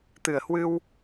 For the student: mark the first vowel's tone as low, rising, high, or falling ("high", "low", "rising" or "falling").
low